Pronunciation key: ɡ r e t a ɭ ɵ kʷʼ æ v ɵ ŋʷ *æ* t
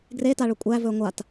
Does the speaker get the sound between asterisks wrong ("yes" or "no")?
yes